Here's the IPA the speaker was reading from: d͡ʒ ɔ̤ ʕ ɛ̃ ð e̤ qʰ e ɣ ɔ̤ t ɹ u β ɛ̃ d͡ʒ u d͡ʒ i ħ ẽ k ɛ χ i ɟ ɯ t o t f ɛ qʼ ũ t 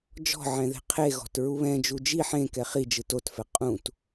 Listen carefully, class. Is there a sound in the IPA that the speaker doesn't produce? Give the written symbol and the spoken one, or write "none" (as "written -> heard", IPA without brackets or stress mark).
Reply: ɟ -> d͡ʒ